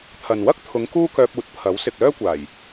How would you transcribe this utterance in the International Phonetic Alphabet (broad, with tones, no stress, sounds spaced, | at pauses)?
t̪ʰ ɐ˨ n w ɐ˥ k̚ t̪ʰ ʊ˨˧ ŋ k uː˥ k œː˧ p̚ uː˨˥ t̚ pʰ ɐ˨˥ w s ɪ˨ k̚ l œː˥ kʷ aː˨˩ j